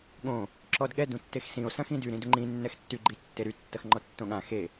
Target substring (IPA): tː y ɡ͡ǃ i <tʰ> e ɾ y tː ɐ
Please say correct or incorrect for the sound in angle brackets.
incorrect